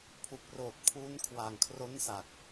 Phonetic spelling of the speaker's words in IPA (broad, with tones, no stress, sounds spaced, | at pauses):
pʰ u˨˩ k̚ r oː˨˩ t̚ pʰ uː˦˥ n kʰ w a˨˩ ŋ kʰ r o˦˥ n s a˨˩ k̚